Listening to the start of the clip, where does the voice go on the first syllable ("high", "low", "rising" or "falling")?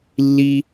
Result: high